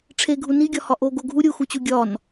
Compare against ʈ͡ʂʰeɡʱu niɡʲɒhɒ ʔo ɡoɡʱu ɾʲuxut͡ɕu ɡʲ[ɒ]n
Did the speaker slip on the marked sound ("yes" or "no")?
no